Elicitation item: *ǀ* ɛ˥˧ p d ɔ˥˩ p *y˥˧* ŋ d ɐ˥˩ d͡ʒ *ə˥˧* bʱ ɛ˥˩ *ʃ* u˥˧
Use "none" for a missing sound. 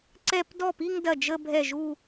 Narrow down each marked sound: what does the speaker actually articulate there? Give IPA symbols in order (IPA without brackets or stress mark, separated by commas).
ǀ, i˥˧, ə˥˧, ʒ